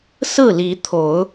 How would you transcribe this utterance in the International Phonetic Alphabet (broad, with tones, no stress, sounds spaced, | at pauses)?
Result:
s ɹ̩˥˨ l i˨˦ t̪ʰ o˨˦ ʊ̯